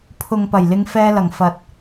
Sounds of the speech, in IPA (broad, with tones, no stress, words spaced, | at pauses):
pʰʊ˨ŋpɐ˨˩jlɪ˨˧ŋ fɛː˧lɐ˨˩ŋ fɐ˨t̚